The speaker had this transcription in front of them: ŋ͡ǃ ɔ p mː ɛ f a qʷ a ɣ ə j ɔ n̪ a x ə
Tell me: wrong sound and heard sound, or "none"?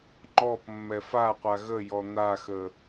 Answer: none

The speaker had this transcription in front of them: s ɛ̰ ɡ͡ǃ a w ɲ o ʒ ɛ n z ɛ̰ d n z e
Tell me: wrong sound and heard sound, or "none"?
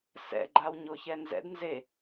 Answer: ʒ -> ç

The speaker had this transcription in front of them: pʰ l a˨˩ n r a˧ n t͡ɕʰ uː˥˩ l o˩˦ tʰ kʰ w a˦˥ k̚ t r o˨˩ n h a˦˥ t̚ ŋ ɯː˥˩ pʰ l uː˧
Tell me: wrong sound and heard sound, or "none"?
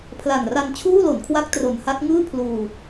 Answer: tʰ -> n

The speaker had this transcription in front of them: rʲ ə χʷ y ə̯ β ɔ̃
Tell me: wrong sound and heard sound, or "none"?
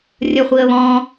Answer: y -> i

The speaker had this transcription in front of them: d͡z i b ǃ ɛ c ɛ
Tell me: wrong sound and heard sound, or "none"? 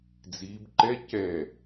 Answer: none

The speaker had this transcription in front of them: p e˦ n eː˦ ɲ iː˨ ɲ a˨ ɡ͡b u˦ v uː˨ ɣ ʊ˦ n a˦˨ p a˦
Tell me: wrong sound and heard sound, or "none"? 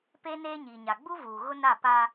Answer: none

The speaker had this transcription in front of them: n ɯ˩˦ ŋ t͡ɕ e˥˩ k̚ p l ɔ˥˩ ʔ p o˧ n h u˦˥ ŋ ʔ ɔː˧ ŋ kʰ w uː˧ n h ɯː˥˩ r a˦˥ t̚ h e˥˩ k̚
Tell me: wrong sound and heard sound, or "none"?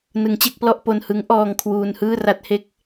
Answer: u˦˥ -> ɯ˦˥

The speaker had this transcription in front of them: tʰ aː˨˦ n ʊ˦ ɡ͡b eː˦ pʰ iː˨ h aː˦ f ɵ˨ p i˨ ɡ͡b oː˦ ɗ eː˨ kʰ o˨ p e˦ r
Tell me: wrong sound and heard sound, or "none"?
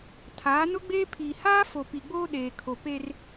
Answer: ɵ˨ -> o˨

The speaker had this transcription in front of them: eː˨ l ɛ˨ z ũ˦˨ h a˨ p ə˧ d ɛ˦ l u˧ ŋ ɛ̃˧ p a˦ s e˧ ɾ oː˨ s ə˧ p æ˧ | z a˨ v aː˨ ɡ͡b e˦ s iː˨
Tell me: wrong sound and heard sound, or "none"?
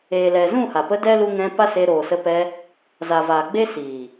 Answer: æ˧ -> ɛ˧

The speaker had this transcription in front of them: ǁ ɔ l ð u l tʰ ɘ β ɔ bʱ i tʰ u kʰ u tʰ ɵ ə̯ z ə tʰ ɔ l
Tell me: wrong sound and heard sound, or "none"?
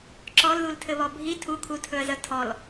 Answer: none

